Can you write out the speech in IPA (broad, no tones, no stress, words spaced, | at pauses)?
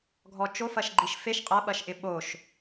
ɡʱɔt͡ʃofɐʃ ɡ͡ǃiʃfeʃ qʼɐ ɓɐʃʔɪɓoʃ